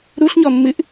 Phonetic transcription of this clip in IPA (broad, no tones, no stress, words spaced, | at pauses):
ɾuɬɲɔmːɨʔ